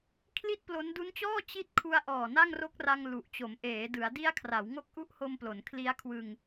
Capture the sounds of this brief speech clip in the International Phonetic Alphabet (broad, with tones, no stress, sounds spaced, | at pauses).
kʰ l i˥˩ t̚ p l o˦˥ n d u˦˥ n t͡ɕ ɔː˥˩ t͡ɕ i˦˥ t̚ kʰ u˧ a̯ ʔ ɔː˨˩ n a˥˩ ŋ r o˦˥ k̚ r a˧ ŋ l u˨˩ ʔ t͡ɕ o˩˦ m ʔ eː˩˦ d ɯ˩˦ a̯ d i˦˥ a̯ kʰ r a˩˦ w ŋ o˦˥ k̚ ʔ u˦˥ ʔ h o˧ m p l o˩˦ n kʰ l i˦˥ a̯ kʰ w ɯ˧ ŋ